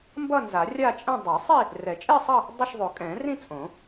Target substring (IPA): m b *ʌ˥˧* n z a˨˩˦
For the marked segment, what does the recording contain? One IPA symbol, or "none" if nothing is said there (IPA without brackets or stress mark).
ʌ˥˧